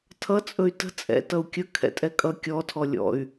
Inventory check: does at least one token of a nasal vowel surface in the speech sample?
no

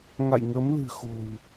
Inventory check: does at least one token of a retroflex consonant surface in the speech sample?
no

